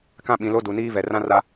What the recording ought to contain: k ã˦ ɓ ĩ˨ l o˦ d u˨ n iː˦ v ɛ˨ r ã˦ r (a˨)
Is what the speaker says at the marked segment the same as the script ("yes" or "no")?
no